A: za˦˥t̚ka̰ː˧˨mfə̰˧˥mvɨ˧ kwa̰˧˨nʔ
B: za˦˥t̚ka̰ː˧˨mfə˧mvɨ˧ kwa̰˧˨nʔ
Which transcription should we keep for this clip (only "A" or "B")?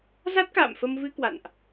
B